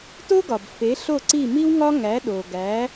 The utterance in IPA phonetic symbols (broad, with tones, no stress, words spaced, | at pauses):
to˥ɡɒ˩b fe˩˥ɬo˥˩ǀi˥˩ mi˥wŋɒ˥ŋæ˩˥ ɗo˩ɡæ˩˥